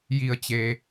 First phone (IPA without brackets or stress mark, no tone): j